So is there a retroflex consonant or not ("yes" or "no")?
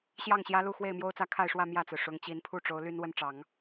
yes